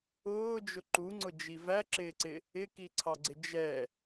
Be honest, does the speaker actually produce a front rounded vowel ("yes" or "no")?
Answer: no